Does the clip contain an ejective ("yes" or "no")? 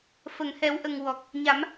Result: no